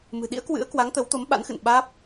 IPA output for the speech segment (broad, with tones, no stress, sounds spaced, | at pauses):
m ɨ̤˨˩ ɗ ḭ˧˥ ə̯ k w ɨ̰˧˥ ə̯ k w a˨˦ ŋ t̪ ə˨˦ w t̪ o˨˦ m ɓ a̰˧˥ n x ɨ̰˧˨ n ɓ aː˦˥ p̚